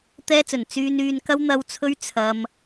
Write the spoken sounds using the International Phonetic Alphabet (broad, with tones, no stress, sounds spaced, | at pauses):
t̪ ɛː˧ t͡s ɵ˨˩ n t͡s yː˧ n yː˨ n k ɐ˧ w n̪ ɐ˨˧ w t͡sʰ ɵ˧ ɥ t͡sʰ ɐ˧ m